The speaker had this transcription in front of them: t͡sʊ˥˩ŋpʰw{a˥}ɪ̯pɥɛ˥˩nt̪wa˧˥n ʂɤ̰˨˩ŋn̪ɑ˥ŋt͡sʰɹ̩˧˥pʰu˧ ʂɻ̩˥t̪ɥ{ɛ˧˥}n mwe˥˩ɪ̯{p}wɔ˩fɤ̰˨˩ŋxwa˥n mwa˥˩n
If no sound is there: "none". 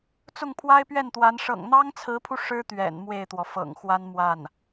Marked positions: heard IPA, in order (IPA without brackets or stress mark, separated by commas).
a˥, ɛ̰˨˩, t̪